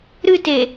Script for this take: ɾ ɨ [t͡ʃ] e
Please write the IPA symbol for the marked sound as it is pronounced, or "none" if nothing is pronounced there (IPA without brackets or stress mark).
t